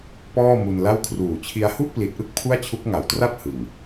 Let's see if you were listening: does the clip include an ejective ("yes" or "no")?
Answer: no